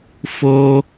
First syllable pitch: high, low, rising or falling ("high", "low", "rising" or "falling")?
high